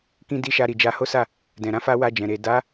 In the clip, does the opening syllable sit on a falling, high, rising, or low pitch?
high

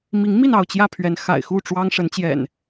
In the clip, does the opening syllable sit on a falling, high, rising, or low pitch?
rising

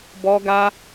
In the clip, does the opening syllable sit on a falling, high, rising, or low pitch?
high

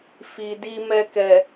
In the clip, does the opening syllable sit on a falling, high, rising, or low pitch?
low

